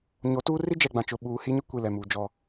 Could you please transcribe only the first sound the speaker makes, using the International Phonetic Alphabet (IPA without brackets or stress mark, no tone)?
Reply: ɲ